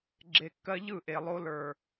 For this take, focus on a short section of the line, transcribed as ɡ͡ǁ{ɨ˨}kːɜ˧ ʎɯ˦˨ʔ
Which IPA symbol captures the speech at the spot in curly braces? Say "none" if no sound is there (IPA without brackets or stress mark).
e˨